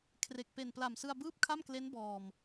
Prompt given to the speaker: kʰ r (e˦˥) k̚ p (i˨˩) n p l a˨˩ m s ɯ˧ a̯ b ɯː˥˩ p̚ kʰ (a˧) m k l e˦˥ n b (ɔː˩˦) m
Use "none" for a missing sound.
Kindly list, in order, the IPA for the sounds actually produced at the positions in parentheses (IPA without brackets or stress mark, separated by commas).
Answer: e˨˩, e˨˩, a˥˩, ɔː˨˩